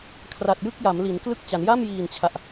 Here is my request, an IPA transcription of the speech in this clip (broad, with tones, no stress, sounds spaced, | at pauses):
kʰ r a˨˩ t̚ j ɯ˥˩ k̚ j a˩˦ m l i˩˦ n k l ɯ˥˩ k̚ t͡ɕ a˩˦ n j a˥˩ m j iː˨˩ n t͡ɕʰ a˨˩ ʔ